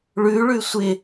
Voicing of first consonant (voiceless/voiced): voiced